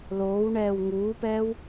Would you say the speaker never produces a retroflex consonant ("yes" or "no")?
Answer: no